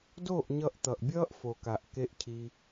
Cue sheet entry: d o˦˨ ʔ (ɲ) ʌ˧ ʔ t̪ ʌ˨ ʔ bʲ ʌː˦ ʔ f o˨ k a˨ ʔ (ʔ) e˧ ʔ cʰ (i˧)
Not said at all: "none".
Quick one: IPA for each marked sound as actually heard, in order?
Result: ɲ, k, i˧

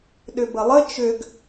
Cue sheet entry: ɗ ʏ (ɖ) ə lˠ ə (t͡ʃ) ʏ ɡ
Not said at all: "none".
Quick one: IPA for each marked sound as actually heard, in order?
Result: b, t͡ʃ

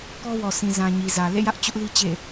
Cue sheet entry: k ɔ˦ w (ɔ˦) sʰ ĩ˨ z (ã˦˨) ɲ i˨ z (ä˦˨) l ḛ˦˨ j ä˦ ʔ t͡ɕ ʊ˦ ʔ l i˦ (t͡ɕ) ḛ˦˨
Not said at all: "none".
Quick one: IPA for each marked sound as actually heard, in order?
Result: ɔ˨, ã˨, ä˨, t͡ɕ

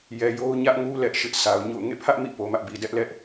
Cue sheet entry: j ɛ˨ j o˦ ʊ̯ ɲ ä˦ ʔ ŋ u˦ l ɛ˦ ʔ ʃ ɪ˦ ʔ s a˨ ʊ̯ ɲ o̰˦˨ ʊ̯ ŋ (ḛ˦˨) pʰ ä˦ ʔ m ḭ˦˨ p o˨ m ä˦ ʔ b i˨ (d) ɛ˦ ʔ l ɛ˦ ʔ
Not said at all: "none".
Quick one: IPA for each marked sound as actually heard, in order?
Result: ḛ˦˨, d

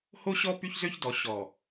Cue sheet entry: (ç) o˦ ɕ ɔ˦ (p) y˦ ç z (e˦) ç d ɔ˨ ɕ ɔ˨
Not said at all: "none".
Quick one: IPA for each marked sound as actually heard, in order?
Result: h, p, ø˦

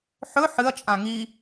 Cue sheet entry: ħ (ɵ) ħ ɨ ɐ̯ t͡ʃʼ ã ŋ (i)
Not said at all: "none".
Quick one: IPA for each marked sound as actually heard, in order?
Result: ɵ, i

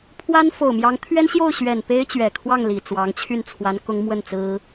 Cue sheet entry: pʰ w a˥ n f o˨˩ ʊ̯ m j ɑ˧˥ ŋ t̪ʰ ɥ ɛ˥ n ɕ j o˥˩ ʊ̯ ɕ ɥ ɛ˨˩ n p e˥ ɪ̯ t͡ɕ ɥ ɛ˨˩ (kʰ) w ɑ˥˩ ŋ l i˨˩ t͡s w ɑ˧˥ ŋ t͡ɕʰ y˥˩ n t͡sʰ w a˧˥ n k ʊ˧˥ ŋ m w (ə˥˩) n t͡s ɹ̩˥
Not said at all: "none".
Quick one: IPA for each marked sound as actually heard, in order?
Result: kʰ, ə˥˩

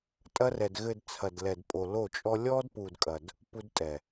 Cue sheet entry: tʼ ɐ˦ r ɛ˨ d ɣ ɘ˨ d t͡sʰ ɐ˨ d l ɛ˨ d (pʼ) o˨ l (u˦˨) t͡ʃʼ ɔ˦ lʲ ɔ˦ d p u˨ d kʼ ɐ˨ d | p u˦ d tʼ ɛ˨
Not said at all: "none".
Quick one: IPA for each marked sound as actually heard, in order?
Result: pʼ, o˦˨

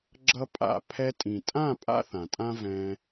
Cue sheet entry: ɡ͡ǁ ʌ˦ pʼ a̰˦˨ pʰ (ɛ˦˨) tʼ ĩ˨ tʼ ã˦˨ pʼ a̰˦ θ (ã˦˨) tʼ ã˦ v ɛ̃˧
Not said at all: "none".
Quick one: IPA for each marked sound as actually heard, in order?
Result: ɛ˧, ã˨

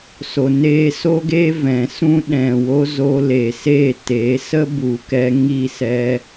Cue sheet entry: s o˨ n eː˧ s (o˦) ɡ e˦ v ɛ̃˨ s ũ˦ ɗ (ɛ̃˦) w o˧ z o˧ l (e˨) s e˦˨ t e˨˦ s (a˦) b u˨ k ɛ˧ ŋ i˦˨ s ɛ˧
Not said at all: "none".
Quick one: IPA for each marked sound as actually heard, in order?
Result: o˦, ɛ̃˨, e˨, ə˦

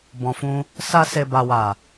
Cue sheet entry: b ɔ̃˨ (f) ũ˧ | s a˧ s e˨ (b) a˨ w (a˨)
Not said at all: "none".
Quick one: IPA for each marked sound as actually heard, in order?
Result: f, b, a˨

